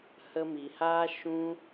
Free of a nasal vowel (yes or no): no